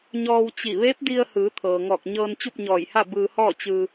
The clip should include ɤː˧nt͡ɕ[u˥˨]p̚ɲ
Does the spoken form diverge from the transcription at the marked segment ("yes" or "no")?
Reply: no